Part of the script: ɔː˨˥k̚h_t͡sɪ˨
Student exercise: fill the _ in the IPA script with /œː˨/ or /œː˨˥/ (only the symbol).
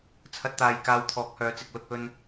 œː˨˥